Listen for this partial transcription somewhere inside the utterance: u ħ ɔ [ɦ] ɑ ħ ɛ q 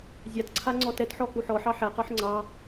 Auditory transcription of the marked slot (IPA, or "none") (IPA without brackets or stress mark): ħ